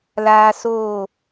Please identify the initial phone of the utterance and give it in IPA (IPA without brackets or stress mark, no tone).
l